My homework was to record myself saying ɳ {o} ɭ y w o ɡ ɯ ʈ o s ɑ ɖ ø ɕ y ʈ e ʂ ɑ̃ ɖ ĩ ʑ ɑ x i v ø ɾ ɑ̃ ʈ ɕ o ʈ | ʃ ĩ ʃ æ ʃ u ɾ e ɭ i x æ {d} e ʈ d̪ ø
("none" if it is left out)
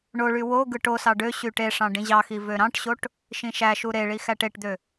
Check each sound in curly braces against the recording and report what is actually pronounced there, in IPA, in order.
o, ʈ

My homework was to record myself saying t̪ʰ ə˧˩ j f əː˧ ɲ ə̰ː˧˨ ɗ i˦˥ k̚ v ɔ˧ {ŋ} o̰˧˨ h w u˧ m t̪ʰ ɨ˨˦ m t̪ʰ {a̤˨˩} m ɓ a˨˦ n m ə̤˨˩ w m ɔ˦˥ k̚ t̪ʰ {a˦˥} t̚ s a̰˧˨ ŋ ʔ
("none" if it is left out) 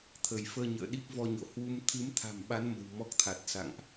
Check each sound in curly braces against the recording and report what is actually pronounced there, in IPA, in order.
ɲ, a̤˨˩, a˨˩

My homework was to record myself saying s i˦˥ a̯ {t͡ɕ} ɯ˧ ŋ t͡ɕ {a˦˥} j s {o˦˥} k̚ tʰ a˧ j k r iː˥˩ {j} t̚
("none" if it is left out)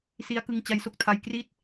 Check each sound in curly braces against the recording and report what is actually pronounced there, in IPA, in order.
k, a˦˥, o˦˥, none

